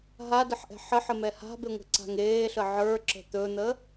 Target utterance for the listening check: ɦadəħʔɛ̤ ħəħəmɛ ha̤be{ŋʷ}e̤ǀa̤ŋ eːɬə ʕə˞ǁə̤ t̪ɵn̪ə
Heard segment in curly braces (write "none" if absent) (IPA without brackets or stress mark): ŋʷ